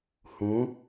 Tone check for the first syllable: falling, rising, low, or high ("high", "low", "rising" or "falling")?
rising